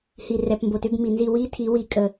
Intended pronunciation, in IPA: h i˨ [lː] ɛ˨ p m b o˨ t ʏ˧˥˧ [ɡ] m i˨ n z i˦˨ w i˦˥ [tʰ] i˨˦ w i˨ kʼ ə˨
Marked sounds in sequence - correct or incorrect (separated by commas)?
incorrect, correct, correct